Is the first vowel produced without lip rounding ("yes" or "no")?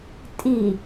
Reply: yes